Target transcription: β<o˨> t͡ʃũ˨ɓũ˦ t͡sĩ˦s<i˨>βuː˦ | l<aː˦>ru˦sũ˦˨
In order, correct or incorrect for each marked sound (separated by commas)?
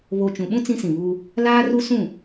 correct, incorrect, correct